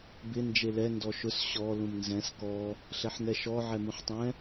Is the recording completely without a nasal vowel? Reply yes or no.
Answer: no